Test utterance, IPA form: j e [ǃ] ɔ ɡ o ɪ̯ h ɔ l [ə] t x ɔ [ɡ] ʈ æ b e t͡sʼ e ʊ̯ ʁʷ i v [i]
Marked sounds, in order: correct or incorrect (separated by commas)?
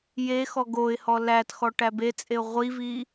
incorrect, incorrect, incorrect, correct